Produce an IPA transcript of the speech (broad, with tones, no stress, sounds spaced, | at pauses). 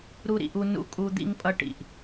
ɾ u˧ ɾ ḭ˩ ʔ u˧ n ṵ˧ kʼ u˧ d̪ ḭ˧ ŋ pʼ ʌ˧ ʈ ḭ˩ ʔ